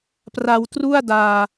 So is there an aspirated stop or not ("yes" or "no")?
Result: no